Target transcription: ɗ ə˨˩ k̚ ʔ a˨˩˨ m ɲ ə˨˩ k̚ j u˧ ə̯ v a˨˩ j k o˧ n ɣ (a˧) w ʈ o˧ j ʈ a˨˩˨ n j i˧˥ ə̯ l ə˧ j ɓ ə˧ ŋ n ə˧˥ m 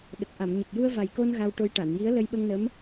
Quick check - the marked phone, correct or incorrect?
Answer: correct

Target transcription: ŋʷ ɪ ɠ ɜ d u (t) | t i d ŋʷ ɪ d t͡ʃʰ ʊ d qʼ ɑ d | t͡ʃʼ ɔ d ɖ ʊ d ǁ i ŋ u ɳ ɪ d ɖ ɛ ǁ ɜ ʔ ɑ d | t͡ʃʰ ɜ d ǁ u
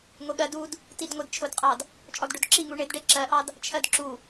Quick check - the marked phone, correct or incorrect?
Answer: incorrect: d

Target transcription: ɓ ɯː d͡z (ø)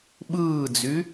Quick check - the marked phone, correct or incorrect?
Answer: incorrect: y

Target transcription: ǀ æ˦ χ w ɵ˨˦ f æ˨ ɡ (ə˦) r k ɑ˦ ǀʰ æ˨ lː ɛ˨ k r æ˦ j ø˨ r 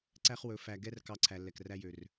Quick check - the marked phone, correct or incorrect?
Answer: incorrect: ɛ˦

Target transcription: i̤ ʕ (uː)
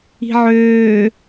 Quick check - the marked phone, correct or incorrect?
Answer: incorrect: øː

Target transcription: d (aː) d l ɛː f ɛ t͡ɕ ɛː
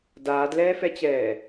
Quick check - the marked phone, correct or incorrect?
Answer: correct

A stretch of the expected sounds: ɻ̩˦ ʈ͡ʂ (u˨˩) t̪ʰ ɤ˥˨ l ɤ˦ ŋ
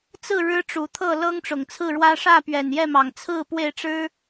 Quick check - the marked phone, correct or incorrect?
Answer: correct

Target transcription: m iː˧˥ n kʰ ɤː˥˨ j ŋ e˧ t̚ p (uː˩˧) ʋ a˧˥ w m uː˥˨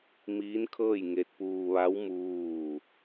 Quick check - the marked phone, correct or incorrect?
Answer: incorrect: uː˧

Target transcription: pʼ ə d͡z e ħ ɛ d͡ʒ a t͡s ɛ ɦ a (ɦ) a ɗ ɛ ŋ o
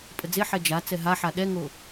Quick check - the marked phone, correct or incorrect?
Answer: incorrect: ħ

